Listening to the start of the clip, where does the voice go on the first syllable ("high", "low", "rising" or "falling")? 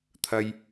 high